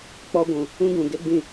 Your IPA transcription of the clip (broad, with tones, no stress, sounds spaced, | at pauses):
k͡p ɔ˦ ɡʷ ũ˨ | ũ˦ ɡ ũ˨ ɡ e˦ ɡ͡b ĩ˦˨